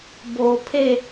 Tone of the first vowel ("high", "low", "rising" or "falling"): low